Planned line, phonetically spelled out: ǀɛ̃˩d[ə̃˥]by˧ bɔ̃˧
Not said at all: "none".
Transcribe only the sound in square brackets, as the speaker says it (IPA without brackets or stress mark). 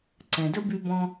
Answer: ə˥